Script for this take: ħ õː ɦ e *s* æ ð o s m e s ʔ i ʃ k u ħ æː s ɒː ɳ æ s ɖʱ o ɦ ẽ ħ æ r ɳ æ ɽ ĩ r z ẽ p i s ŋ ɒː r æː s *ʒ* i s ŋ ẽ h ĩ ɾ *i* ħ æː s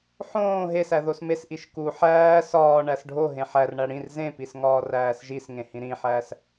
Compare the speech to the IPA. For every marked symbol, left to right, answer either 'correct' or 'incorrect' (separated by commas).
correct, correct, incorrect